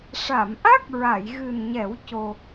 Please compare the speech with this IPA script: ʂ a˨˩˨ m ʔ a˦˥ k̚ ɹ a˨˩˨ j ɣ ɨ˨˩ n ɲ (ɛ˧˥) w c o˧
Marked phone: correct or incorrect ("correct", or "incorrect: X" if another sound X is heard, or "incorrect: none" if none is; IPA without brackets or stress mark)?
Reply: incorrect: ɛ˨˩˦